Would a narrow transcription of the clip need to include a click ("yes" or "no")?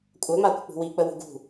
no